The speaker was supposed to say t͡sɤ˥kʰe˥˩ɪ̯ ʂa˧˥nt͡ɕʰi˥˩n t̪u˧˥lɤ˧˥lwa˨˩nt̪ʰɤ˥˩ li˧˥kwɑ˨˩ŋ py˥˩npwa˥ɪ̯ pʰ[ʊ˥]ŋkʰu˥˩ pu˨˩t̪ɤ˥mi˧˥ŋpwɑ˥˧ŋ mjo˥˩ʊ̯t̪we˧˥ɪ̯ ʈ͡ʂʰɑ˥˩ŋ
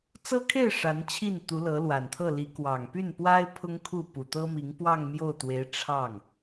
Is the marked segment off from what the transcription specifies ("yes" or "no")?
no